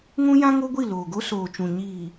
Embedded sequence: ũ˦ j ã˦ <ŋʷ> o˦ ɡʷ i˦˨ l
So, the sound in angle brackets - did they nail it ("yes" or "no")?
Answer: no